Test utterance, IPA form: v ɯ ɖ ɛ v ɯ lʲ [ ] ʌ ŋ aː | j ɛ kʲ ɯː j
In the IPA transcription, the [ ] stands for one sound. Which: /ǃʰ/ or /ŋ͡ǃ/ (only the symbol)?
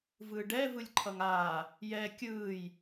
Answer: ǃʰ